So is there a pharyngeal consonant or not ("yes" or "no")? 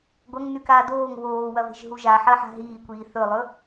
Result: yes